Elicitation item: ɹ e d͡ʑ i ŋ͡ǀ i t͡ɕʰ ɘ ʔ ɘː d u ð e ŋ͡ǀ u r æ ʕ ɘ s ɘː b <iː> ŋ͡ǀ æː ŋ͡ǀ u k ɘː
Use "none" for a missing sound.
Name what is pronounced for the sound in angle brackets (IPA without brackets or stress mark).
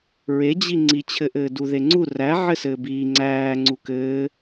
iː